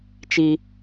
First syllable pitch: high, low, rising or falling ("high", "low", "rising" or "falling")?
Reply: high